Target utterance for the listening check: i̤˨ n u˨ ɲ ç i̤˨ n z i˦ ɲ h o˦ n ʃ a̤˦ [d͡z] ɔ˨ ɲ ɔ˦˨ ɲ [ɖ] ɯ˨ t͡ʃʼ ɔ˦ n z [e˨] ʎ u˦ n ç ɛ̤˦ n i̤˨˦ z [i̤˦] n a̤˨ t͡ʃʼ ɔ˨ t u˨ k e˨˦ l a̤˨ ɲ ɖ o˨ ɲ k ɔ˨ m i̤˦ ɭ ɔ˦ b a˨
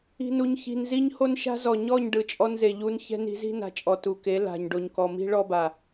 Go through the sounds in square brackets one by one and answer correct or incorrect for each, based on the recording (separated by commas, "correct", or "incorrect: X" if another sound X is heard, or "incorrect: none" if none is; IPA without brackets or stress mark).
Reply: incorrect: z, correct, correct, correct